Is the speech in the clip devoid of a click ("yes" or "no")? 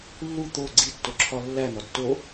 no